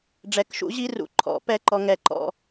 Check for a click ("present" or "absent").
present